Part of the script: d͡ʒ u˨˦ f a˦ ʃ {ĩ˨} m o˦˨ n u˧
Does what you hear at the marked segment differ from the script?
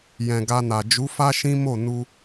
yes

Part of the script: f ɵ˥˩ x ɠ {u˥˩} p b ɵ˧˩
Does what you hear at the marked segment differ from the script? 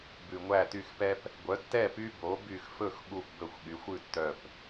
no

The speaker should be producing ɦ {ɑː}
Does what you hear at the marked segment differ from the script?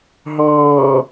no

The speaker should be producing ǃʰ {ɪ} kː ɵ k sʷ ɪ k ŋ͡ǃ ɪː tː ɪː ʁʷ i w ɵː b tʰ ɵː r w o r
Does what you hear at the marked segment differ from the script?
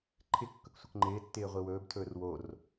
no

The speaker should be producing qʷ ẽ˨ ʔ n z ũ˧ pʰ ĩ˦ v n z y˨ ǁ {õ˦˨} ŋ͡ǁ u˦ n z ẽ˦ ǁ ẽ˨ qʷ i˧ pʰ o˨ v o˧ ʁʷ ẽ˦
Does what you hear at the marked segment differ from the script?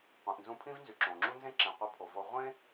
yes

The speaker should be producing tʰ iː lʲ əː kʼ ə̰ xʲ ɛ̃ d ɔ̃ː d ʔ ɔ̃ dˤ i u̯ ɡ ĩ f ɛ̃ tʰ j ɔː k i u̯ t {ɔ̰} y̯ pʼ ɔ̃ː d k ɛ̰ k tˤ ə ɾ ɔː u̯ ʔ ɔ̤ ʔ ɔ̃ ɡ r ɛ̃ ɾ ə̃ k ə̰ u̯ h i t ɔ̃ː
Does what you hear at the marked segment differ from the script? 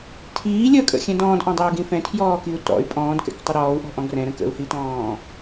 no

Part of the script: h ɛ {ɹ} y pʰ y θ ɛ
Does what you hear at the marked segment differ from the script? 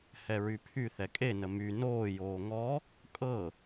no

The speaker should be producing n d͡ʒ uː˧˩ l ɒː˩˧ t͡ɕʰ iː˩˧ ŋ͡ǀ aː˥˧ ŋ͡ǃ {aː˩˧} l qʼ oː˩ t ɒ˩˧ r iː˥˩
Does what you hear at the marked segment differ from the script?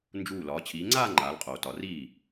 no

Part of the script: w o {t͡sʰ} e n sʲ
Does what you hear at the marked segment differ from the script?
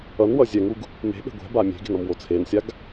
no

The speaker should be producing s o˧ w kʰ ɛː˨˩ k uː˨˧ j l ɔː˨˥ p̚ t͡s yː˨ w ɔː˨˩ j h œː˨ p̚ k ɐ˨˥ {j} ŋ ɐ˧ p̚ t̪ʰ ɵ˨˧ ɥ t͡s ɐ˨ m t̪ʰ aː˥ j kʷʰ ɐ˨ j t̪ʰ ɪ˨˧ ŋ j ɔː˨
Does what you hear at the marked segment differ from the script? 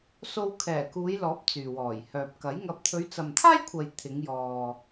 no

